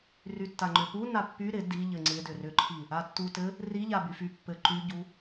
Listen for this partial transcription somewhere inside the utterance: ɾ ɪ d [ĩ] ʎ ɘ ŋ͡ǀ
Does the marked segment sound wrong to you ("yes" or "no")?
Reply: yes